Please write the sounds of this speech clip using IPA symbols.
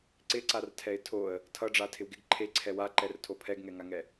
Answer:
ǀɪǀartʰɛɪ̯ tʰoə̯ | tʰʌɖ͡ʐatʰɪw ɡɪɡ ǃʰeǀʰɛ waǃɛrtʰo pʰɛɡŋɛŋaŋɛ

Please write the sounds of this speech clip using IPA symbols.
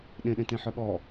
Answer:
ɗẽɗẽtẽħœ ɠɔ

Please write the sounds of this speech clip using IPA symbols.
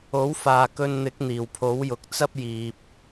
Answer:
o˨˥wfaː˨kɵ˧n n̪ɪ˨˥k̚n̪iː˨˩wpʰo˨˥wjʊ˨k̚ t͡sɐ˥p̚ jiː˨p̚

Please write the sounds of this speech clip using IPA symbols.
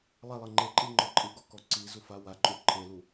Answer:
lˠɛlˠɘ ŋ͡ǃeǃʼiŋ͡ǃɔ ǃʼɨɡɔkɔ ǀizufa waǃʼu ǃʰelu

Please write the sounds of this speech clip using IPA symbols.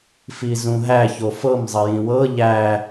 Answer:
fizũɦæ çofɤm zˤəjĩwɤ ʎæ

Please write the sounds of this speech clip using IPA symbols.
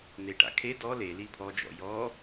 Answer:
n̪eʈa̰kʰe dɔ leli pʰɔd͡ʒɔ̰ jɔ

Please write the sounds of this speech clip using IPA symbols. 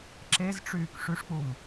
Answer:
ǁezʈ͡ʂyːk ʂyʂk͡pum

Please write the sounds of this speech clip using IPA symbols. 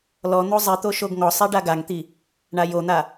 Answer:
lɔn̪o zˤit̪o ʃoɡŋɔsˤi ɖaɡaŋt̪i | ɳajon̪a

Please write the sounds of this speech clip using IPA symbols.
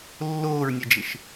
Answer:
lːoːɹnʲɛd͡ʒɪʃ

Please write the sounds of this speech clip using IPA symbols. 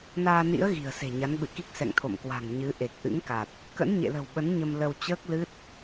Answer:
naː˧nḭ˧˥ə̯ ɣi̤˨˩ə̯se̤˨˩ɲa˨˦nɓɨ̰˧˨ ki˦˥k̚sɛ̰˧˨ŋ t̪ʰo̰˧˨mkwa̤˨˩ŋ ɲɨ˨˦ʔe˨˩k̚ ʔɨ̰˧˥ŋka˨˩t̚ | kə̰˧˥nɲḛ˧˨lə̤˨˩wɓə˨˦n ɲə˧mlə˧w t͡ɕəː˦˥k̚lɨ˦˥t̚

